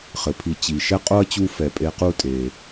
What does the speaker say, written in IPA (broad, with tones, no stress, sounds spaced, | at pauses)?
χ ɘ˩ pʰ i˨ t͡ɕ i˩ ʃ ɛ˥ qʼ o˥ ɐ̯ t͡ɕ u˦ f ɛ˨ pʼ e˦ q u˥ tʼ e˩